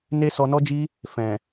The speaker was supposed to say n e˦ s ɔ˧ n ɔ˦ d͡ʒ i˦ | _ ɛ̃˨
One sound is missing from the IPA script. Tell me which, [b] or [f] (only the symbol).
f